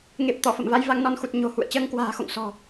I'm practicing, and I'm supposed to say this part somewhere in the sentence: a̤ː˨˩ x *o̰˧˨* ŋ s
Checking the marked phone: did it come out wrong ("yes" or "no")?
no